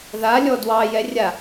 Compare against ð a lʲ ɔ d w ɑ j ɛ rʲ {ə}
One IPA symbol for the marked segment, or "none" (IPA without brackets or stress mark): a